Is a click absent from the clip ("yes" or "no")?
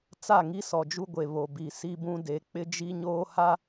yes